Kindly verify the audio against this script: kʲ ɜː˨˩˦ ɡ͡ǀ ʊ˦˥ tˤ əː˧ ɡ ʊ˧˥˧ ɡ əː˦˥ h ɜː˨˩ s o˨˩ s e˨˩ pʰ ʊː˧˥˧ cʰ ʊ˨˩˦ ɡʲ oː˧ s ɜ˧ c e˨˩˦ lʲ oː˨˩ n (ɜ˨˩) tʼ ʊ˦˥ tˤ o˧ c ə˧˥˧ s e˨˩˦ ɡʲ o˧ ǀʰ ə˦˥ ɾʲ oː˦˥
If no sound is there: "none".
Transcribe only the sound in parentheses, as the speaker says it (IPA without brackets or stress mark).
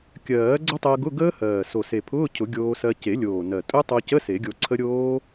ɜ˨˩